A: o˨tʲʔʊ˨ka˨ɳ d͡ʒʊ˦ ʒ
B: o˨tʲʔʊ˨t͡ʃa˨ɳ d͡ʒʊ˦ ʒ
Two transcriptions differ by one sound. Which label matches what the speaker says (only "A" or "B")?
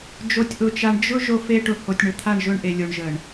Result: B